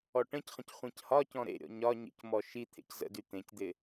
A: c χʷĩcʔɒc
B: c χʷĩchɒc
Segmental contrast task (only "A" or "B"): B